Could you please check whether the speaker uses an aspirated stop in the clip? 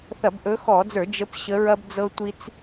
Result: no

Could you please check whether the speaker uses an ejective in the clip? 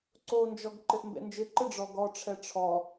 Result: no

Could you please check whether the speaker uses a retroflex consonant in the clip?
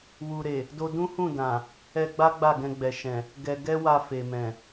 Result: no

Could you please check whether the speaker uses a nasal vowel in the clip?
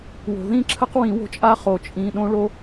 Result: yes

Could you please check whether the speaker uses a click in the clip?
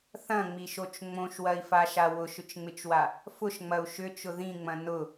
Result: no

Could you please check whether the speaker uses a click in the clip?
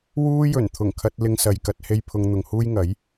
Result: no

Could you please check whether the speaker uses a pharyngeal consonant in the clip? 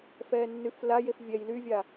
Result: no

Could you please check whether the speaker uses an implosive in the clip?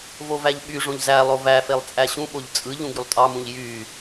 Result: yes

